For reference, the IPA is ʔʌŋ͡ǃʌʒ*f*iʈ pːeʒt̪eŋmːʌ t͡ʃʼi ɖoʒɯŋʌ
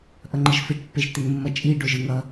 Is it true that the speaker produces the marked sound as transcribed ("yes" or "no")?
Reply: yes